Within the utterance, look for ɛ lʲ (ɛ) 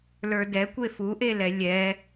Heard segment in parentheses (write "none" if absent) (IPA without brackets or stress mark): ɛ